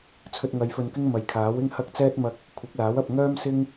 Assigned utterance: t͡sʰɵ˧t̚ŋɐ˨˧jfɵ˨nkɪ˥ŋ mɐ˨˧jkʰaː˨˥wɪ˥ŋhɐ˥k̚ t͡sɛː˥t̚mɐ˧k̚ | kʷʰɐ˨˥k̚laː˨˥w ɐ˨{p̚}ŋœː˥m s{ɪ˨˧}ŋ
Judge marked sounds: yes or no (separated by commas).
yes, no